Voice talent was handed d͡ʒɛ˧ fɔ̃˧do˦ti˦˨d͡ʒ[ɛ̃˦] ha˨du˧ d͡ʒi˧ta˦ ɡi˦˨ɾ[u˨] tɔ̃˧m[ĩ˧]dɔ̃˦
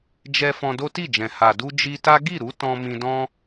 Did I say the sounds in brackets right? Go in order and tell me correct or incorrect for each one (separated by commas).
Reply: incorrect, incorrect, correct